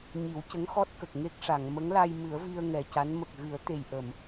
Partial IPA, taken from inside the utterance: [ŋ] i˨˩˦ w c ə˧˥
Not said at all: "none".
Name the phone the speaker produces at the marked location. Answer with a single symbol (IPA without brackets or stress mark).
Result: ɲ